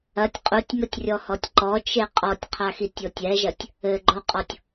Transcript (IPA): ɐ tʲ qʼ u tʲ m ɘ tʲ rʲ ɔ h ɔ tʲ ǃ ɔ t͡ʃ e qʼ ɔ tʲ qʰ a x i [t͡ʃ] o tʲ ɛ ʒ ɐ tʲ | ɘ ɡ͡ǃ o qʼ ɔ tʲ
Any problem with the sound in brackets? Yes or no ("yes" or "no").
yes